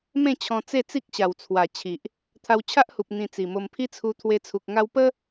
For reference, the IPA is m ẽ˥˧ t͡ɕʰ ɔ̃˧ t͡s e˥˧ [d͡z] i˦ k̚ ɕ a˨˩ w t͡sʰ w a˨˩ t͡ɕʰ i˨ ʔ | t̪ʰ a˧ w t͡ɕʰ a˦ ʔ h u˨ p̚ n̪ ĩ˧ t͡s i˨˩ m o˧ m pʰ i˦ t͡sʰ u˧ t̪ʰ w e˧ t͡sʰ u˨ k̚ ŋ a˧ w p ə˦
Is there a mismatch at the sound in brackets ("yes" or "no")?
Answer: yes